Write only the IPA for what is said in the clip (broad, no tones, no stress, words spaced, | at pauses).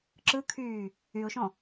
ǁɯkʰyː | yʊ̯ʃɔ̃